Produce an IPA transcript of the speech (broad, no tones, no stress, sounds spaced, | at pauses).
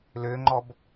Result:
l ʏː ŋ͡ǃ ɔ b